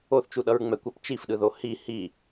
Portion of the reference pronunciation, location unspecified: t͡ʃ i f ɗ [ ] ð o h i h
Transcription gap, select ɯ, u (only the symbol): ɯ